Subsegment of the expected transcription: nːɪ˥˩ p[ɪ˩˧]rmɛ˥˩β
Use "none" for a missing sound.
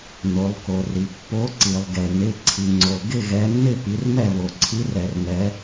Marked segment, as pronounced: i˩˧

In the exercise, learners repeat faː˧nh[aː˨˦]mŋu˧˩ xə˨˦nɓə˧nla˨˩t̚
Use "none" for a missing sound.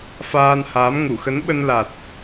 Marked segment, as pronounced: aː˨˦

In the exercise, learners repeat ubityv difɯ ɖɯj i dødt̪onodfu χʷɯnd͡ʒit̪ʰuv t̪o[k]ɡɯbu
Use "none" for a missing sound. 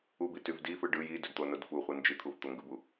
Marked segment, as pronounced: ŋ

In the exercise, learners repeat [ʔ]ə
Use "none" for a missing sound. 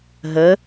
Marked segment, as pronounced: ɦ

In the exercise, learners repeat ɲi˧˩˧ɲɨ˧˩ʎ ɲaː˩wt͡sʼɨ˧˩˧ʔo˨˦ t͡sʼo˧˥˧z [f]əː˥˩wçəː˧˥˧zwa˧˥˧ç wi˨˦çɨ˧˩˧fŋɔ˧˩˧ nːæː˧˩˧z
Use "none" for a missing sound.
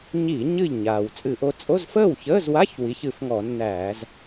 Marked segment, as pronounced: f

